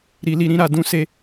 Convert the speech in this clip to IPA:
ɾ i˧ l i˧ ɾ ĩ˦ ɾ a˧ d ũ˦ s e˦

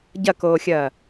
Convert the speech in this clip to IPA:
ɟ ɐ k oː xʲ ɐː

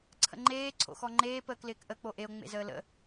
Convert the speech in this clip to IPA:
ǀʰ ə̰ ŋ͡ǃ eː ǀʰ o̰ x ɔ ŋ͡ǃ eː p əː k l ɪː k ʔ ə k͡p o ʔ e o̯ ŋ͡m ḛ z əː l ə̰

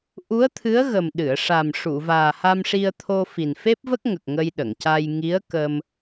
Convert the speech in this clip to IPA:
ʔ u˧˥ ə̯ t̪ʰ ɨ˧˥ ə̯ ɣ ə˨˩ m ɗ ɨ˨˩˨ ə̯ ʂ a˨˩ m ʂ u˨˩˨ v aː˨˩ h a˧ m ʂ i˧ ə̯ t̪ʰ o˧ f i˨˩ n f e˦˥ p̚ v ə˦˥ k̚ ŋ ə˨˩ k̚ ŋ ə˧ j ɗ ə˨˩˨ ŋ c a˧ j ŋ i˧˥ ə̯ k ə˧ m

